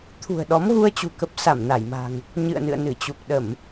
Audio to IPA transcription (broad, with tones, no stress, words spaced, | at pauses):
t̪ʰṳ˨˩ə̯ɗɔ˨˦mɣu˧ə̯t͡ɕṳ˨˩ kə˦˥p̚sa˧˩mna˧˩jma̤˨˩ŋ | ɲɨ̰˧˨ə̯nɨ̰˧˨ə̯ nɨ˧˩t͡ɕu˨˩k̚ ɗə˧˩˨m